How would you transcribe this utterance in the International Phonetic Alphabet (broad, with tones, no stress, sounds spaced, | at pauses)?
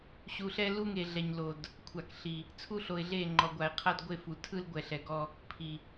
ɕ u˨ ɬ ɛ˦ l u˦ ŋ e˨ ɮ ɛ˨ ɲ l o˨ d | kʷʰ a˨ k ɬ i˨ | t͡sʰ u˦ ɬ o˨ ɪ̯ ɮ e˦˨ ŋ͡ǃ ɔ˨ ɡʷ a˨ ɪ̯ qʰ a˦ d ɡʷ e˦˨ f u˨ tʰ ɯ˦ l ɡʷ ɛ˨ ɬ ɛ˨ ɡ ɔ˦ | pʰ i˨